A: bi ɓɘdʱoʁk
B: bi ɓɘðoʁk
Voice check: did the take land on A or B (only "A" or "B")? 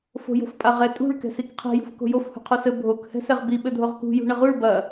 A